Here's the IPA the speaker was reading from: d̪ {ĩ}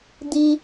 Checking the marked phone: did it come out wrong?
yes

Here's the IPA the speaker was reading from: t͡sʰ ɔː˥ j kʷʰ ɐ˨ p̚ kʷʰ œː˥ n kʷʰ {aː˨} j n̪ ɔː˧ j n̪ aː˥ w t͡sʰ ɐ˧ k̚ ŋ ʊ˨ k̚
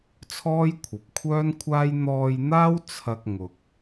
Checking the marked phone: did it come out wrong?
yes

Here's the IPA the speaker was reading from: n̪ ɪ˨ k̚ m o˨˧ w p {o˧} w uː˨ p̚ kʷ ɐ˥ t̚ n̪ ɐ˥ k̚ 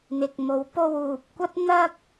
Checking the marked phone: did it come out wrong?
no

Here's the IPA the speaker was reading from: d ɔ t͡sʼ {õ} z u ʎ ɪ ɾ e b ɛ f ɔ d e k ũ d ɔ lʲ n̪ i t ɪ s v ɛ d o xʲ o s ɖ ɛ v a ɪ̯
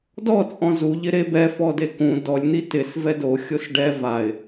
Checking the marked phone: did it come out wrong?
yes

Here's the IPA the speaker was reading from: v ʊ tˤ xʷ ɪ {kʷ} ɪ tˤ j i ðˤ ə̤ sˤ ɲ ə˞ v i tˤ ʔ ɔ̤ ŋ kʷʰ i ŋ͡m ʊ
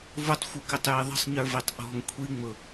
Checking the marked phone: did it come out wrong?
yes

